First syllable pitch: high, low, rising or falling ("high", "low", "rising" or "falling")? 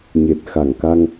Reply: low